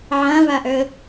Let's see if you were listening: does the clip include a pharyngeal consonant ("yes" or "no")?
yes